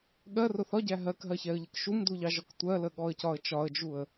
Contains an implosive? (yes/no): yes